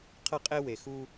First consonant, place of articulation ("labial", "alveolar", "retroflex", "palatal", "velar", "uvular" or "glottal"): uvular